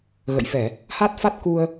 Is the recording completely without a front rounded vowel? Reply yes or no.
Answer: yes